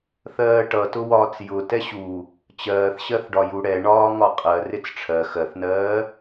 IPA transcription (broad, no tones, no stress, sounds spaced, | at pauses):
θ ɜː ʈ ʌ t ʊ w ɒː t͡s j ʊ t ɛ ɕ u | t͡ɕ ɜː θ ɕ ɜ θ ɖ ɒ j u ɽ ɛ ɳ ɒː ŋ ɒ qʼ ɜ r ɪ t͡s ʈ͡ʂʰ ɜ x ɜ θ n ɜː